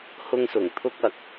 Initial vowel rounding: rounded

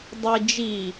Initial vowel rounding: unrounded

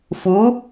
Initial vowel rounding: rounded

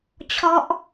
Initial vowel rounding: rounded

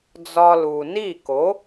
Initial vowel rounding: rounded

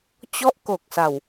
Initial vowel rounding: rounded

